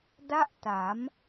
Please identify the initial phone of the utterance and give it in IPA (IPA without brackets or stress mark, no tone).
d